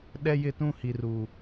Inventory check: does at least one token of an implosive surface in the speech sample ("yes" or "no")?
yes